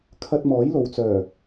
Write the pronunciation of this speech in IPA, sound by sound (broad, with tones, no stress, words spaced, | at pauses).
kʰɐ˧t̚mɔː˨˥jlo˨wt͡sœː˨˩